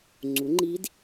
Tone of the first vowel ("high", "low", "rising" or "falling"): rising